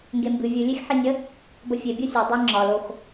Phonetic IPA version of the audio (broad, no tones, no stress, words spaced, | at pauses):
ŋɡembɨ vʲɨ lʲexħinʲə | bəfʲe bʲɤsʲɤ dˤɨ ŋ͡ǁɒl ox